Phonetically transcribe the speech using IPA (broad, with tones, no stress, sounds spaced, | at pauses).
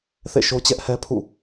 θ ḛ˦˨ ʃ o˦ t͡ɕ ɛ˦ ʔ h ɛ˦ pʰ ṵ˦˨